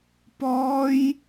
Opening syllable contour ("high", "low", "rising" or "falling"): high